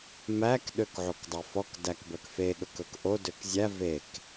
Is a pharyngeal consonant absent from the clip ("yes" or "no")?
no